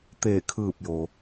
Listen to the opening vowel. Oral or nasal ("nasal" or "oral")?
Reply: oral